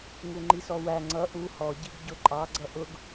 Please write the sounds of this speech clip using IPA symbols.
ŋuŋ͡ǃisɔwæ ŋ͡ǀʌ ʔu hɔ ɟiɡɟʊǃʼɑ ɡ͡ǀʌʔʊɡ

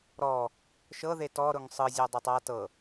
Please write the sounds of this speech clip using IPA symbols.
ɾɔ | ʃɤ ðetɔ ɾʊŋsˤɯ zʲɤdˤʊtˤa tɤ

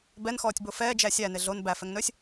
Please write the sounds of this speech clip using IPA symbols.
bɛnxɔːtʲbo fɛːd͡ʒæ sʲæne ɮon bæfɛŋnɵːsʲ

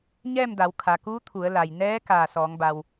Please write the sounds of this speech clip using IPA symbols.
ɲɛː˥˨mda˩˧w kʰa˩kuː˧˥ t̪ʰu˩˧ə̯la˩j nɛː˧˥ kaː˧˩sɔː˩˧ŋba˩w

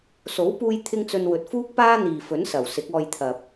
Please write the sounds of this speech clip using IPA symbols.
so˨˥wpuː˧j t̪ʰɪ˥ŋt͡sɵ˧nwɵ˨t̚ fuː˥k̚paː˥ n̪iː˨fɵ˨˥nsɐ˨˩w sɪ˨˥k̚ɔː˧jt̪ʰɐ˨p̚

